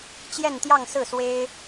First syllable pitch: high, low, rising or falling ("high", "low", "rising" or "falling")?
falling